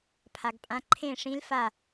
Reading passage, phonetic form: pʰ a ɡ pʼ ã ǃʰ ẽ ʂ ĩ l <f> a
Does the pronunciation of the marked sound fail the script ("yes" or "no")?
no